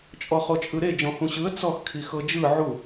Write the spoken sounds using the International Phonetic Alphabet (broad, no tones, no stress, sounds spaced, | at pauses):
t͡ʃʼ ɔ χ o t͡ʃʼ ɯ ɾ e d͡ʒ ɔ̃ h ũ ɕ ɯ ə̯ t͡s ɔ x kʰ i x ɤ d͡ʒ ɯ ʕ u